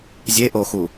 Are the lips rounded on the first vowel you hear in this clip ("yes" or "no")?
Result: no